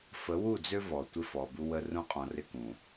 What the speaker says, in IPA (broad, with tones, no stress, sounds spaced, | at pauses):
f ə˨˦ w u˦˨ d͡z ø˦ v ɔ˨ tʷ ɪ˦ f ɔ˨ b u˦ w ə˦ r ũ˦ qʼ ɔ̃˨ r ɪ˦ k ũ˨